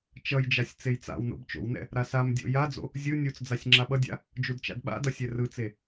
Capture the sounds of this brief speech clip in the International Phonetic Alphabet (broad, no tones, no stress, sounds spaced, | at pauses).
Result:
t͡ʃ ʌ j d͡ʒ a sʲ t͡s e j t͡s a̰ w n o̰ b t͡ʃ o̰ w n ɛ̰ | ɾ a s a m dʲ o̰ j a d͡z o̰ | zʲ ɯ nʲ u t͡s d͡z a sʲ ŋ͡ǁ a ɓ ʌ dʲ a̰ | d͡ʒ u d t͡ʃ a̰ d ɓ a̰ d ʌ sʲ ɛ r ɯ t͡s e